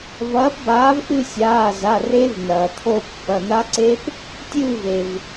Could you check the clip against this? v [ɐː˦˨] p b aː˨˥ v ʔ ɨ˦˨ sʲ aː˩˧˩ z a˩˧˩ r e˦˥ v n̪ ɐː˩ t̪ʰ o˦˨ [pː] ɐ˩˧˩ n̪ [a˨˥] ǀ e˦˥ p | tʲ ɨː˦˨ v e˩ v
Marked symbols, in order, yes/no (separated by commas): no, yes, no